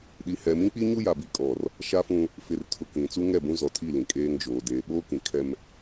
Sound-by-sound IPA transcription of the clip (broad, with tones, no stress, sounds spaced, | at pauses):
ɗ i˨ h ɛ˨ m ĩ˦ k͡p i˦ ɲ u˦ j a˨ b i˦ kʼ ɔ˦˨ r | ʃ a˦ f ũ˦ | f ɪ˦˨ r tʰ ʊ˦ k ĩ˨ t͡s u˦ ŋ ɛ˦˨ b ũ˦ z ɔ˨ tʰ i˦˨ l ĩ˨ kʼ eː˦ ŋ d͡ʒ oː˨ d eː˨ ɓ oː˦ k ĩ˨ kʰ ɛ˦ m